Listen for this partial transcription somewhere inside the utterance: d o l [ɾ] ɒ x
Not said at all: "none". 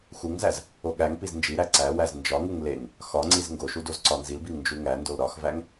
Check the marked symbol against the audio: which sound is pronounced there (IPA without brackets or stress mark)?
ɾ